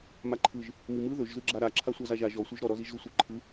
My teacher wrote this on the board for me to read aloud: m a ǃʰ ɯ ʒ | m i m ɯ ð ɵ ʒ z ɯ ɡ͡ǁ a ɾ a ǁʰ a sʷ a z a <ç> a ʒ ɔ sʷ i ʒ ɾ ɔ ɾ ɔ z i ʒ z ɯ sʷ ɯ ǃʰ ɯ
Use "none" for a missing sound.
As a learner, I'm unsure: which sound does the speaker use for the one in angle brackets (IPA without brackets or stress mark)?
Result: ʒ